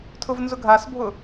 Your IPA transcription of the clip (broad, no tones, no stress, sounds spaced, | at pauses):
tʰ ʊ v n z ʊ ɡʱ a s bʱ ʊ